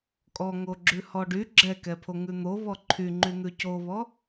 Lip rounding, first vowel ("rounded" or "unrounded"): rounded